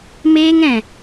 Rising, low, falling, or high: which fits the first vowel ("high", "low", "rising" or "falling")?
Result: high